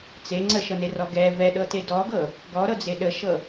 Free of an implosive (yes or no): no